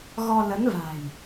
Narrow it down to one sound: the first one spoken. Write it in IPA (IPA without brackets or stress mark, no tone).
ɣ